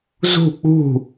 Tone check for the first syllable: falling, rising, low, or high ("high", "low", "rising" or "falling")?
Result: falling